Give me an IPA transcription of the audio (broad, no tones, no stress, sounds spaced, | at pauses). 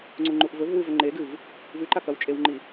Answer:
ŋ͡ǀ u ŋ͡ǃ u ʔ v ɵ v w ɨ v ɵ ŋ͡ǃ e ɡ ɨ v | v ʉ ǃ a k ɐ w t͡ʃʼ e w ŋ͡ǃ i